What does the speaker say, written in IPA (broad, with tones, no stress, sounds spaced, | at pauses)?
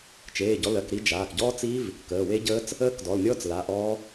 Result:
t͡ʃ eː˩˧˩ ɟ ɔ˩˧˩ l ɜ˩˧˩ k ɾ i˦˥ d͡ʒ aː˩˧˩ k ɟ ɔː˦˥ t͡s i˦˥ v | k əː˩˧˩ w e˦˥ ɟ əː˦˥ t͡s | əː˦˥ k d ɔ˩˧˩ l nʲ ɔː˦˥ t͡s l a˩˧˩ ʔ ɔː˦˥